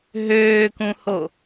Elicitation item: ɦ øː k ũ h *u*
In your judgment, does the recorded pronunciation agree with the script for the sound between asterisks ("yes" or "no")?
no